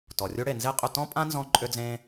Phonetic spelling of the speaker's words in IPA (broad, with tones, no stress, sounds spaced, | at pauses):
t ɔ˨ rʲ u˦ ɽ e˨ n z e˦ qʼ ʏ˧ t ɔ̃˦ pʼ ã˦ n z ɔ̃˧ ǃʼ ʏ˦ d͡z ẽ˦